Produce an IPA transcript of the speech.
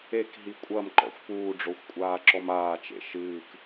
e k ɦ i kʷʼ ɐ m ǃ ɔ̰ xʷ p uː ɖ͡ʐ o xʷ kʷʼ aː ǁ ɔ m aː t͡ʃ ḛ ʃ ɨː k

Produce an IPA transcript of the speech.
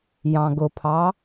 j ɑ̃ ɡ ʊ pʰ ɑ

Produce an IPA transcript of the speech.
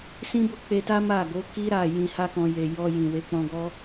s ĩ˦ b o˦˨ k͡p e˧ t a˦ m a˦˨ ɡ o˨˦ k i˦ ɾ a˦˨ j ĩ˧ h a˦ k ɔ̃˧ j e˨ j ɔ˧ j ĩ˨ w e˨˦ k͡p ɔ̃˧ ɡ ɔ˦

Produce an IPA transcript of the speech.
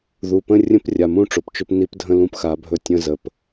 ð u˨ p ə̃˦ rʲ ə̃˦ p rʲ a˨ m ũ˦˨ ʈ͡ʂ o˨ p t͡ʃ ɵ˦ p n i˦ p dʱ ə̃˦ l ũ˦ p x a˨˦ bʱ ɵ˦ tʲ ə̃˦ z ə˨ p

